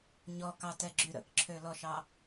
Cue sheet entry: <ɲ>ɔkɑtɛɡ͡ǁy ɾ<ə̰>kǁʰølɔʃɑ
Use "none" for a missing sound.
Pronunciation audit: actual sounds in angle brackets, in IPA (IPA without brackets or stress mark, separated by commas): ɲ, ə̰